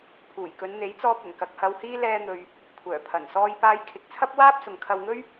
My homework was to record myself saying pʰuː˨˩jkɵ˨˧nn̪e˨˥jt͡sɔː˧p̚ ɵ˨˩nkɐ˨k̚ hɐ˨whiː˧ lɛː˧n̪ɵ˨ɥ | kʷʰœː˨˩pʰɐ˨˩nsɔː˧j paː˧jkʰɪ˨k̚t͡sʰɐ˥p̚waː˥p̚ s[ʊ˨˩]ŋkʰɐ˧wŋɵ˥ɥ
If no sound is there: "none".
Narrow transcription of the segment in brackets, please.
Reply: ʊ˨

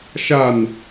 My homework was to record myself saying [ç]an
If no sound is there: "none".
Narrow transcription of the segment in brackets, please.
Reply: ʃ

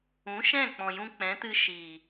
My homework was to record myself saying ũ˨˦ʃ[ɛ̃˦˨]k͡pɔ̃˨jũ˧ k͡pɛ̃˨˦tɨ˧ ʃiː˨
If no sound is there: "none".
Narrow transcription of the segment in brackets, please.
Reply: ɛ̃˦˨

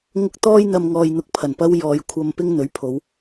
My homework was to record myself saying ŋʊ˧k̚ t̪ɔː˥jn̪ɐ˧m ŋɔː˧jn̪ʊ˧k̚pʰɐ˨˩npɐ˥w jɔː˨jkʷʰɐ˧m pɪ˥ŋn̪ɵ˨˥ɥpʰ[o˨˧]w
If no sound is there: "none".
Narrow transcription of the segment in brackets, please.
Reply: o˨˧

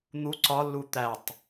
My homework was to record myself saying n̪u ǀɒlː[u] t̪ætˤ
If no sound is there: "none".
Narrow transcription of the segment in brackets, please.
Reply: u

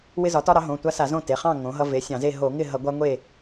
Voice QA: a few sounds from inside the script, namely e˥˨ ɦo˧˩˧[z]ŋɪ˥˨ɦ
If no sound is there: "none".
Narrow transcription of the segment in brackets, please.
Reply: none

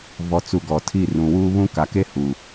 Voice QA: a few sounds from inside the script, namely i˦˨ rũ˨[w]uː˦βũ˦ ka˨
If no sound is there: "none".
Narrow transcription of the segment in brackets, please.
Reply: w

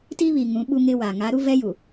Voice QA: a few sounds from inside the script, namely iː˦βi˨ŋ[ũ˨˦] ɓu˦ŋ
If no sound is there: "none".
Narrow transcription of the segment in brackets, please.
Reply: ũ˨˦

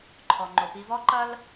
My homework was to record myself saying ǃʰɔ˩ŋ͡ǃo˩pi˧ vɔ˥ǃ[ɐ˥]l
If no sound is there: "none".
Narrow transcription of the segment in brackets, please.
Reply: ɐ˥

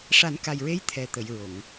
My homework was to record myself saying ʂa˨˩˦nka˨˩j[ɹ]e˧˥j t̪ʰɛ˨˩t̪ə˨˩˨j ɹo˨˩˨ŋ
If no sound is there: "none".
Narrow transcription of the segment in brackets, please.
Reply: ɹ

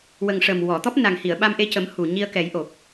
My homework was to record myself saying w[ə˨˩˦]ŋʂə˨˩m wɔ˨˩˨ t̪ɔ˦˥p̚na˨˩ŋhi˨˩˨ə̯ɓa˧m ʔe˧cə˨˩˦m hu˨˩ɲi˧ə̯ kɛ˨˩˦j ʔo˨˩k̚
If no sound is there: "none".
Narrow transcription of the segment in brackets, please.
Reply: ə˨˩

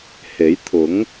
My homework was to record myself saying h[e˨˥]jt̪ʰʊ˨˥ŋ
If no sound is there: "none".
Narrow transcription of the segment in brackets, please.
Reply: e˨˥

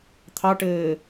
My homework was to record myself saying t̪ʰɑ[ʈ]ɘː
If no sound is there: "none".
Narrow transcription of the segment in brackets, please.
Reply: ʈ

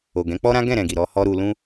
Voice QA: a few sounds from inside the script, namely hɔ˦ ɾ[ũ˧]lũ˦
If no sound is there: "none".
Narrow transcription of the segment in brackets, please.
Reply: u˧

